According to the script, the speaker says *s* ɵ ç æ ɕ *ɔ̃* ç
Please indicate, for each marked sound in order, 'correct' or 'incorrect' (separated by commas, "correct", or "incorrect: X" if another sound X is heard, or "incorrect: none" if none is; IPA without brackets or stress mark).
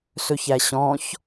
correct, correct